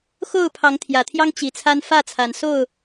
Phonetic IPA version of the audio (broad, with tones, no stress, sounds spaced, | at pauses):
x o˥˨ ʊ̯ pʰ ɑ˨˦ ŋ t̪ʰ j ä˨˩ t̪ʰ j ɑ˦ ŋ t͡ɕ i˨˦ t͡sʰ a˦ n f ä˥˨ t͡sʰ a˨˩ n s o˥˨ ʊ̯